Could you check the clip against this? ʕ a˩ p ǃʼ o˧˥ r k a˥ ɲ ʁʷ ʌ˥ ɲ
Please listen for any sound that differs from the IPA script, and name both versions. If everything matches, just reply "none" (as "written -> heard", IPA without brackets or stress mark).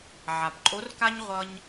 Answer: none